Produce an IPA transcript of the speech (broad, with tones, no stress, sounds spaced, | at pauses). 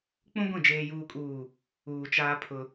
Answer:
k͡p ũ˦ ɡʷ ĩ˦˨ d͡ʒ eː˨ j uː˨ kʼ uː˨ | uː˨ t͡ʃ aː˦ pʰ ʊ˦